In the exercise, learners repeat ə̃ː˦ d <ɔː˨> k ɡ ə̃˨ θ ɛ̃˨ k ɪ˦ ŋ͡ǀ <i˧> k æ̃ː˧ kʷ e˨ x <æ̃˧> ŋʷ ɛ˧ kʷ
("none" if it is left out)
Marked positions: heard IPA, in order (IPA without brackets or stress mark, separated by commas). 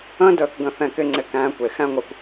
əː˨, ɪ˧, æ̃˦